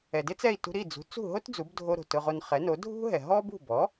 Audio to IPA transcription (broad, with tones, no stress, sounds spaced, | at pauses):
ɛ˩ d ɪ˥ t͡s ɛ˥˩ i̯ t ṳ˧ ɾ i˥˩ d͡z ṳ˩˥ t͡s ṳ˥˩ ɦ o˥ t d͡z u˩˥ b dʱ o˧ ɾ o̤˩ t ʊ˧ ʁ o˧ n χ ɛ˩˥ n o˩˥ dʱ ṳ˥ ɦ ɛ˩ ɦ ɔ˥ b ṳ˥˩ b ɔ˩˥